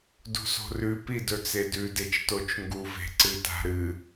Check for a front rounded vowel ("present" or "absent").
absent